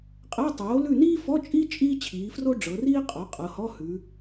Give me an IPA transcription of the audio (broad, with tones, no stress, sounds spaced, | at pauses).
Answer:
qʼ ɛ˧˥˧ tˤ oː˩˥ l ʉ˦˨ n iː˥ f ɔ˧˥˧ t͡ʃʼ iː˥ t͡ʃʼ iː˥ t͡ɕʰ iː˩˧ f r o˥ ɖ͡ʐ ɤ˩˧ r iː˥ qʼ ɔ˩˥ qʼ ɤ˩˧ h ɔ˧˥˧ h ʉ˩˧